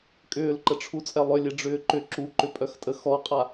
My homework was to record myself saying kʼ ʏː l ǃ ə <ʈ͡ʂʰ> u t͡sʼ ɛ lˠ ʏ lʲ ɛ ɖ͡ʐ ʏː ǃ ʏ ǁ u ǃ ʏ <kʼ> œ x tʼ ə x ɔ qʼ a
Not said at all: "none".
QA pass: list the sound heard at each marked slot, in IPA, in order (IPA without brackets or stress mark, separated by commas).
ʈ͡ʂʰ, pʼ